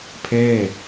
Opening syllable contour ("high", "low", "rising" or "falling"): falling